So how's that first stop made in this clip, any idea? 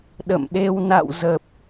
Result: implosive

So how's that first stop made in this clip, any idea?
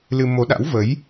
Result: implosive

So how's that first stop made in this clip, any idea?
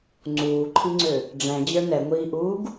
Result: click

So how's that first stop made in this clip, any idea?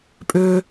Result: ejective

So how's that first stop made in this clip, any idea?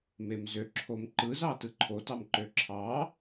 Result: click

